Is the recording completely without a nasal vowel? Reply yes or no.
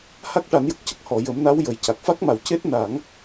yes